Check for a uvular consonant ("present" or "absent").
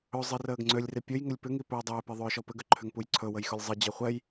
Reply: present